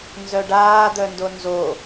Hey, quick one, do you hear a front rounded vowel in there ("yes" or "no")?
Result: yes